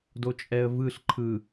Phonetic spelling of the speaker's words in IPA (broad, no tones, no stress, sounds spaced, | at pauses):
d o t͡ʃʼ ɛ ə̯ v ɯ ɬ ǃʰ ɯ